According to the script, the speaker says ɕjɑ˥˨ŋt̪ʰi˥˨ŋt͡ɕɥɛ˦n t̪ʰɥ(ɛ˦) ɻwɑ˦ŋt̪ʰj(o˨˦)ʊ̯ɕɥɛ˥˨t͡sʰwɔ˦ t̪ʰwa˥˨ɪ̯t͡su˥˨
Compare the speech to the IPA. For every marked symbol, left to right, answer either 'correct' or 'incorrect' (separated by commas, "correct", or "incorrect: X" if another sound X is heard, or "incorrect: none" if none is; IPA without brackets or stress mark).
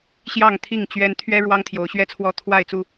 correct, correct